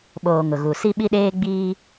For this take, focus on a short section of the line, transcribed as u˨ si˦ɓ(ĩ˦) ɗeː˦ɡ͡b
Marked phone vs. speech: incorrect: i˦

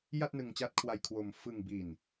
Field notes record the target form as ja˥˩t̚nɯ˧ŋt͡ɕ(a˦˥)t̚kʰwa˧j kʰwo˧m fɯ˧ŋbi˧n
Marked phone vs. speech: correct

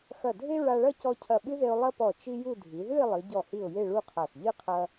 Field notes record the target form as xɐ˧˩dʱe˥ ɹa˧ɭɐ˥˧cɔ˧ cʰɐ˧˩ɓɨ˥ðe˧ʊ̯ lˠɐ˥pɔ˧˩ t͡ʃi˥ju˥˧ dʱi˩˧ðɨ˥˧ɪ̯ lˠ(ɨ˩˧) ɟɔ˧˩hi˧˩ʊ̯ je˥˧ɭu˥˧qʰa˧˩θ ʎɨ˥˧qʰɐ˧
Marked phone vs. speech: correct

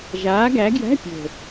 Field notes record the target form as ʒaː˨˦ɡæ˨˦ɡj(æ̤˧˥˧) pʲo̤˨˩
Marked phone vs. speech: correct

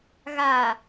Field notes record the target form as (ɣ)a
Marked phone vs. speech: correct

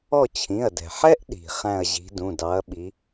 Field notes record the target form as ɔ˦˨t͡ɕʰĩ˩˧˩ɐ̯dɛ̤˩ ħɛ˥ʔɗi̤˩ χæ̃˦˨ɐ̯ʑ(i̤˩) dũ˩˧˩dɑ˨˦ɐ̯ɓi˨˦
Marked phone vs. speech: incorrect: i̤˨˦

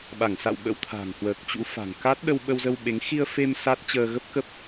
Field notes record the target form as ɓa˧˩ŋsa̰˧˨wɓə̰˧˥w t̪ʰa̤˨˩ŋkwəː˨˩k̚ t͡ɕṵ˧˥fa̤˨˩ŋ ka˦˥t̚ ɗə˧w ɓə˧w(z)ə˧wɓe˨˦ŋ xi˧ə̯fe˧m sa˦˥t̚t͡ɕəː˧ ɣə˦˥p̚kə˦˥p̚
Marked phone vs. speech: correct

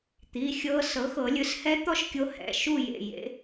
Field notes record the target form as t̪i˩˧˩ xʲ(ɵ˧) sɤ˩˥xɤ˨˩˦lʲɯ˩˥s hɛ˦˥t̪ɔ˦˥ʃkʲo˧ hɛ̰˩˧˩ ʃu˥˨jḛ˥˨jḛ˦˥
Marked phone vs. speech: incorrect: ɤ˧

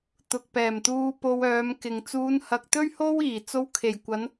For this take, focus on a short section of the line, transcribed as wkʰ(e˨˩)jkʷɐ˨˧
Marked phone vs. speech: correct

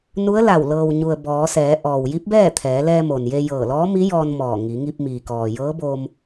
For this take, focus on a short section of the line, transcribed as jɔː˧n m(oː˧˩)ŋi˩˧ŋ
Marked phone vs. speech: incorrect: ɔː˧˩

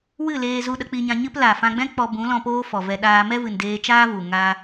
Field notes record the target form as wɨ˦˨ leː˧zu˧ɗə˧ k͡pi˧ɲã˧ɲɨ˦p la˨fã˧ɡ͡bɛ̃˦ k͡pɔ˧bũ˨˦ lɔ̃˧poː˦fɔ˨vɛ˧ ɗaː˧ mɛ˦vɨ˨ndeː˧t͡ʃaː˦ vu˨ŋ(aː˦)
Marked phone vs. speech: correct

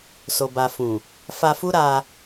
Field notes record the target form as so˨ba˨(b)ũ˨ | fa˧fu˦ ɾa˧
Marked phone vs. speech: incorrect: f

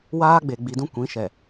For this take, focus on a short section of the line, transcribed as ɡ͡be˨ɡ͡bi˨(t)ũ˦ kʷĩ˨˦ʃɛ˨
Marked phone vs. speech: incorrect: d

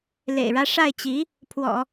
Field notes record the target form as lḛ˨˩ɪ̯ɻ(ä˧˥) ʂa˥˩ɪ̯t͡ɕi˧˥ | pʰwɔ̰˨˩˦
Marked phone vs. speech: incorrect: ä˥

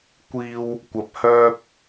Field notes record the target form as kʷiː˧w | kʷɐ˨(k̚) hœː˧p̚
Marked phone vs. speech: incorrect: p̚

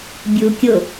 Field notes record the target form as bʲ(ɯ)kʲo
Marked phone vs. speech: incorrect: u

